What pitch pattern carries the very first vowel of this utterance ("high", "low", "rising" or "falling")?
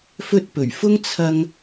high